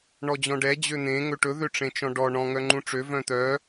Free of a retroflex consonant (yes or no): no